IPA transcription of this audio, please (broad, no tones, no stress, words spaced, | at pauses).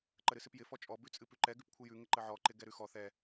ǃəɾɨsɨpjɪ fɔt͡ʃʼɔ bʉt͡sʼɨpʉǃɛ ɡʉpkʷʰɨjʉ ŋɪǃəʕɔ ǃɪɡɛɾʉxɔ θɛ